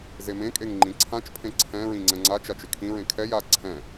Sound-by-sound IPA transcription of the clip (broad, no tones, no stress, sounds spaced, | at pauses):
z e m ẽ kʼ e ŋ ŋ͡ǃ ĩ ǀʰ ã t͡ʃ pʰ ẽ ǀʰ ɛ̃ ɹ ĩ ŋ͡ǀ ɛ̃ ŋ͡ǀ a t͡ʃ a t͡ʃ ɪ kʰ ĩ ɹ ẽ kʰ ɛ j a ǀʰ ɛ̃